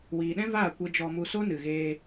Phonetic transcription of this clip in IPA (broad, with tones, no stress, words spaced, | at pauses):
wiː˨ɗɛ̃˦ vaː˦˨kʷe˧ d͡ʒɔ˧mu˧ so˦nɨ˨ɣeː˧